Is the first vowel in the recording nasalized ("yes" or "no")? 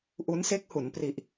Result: no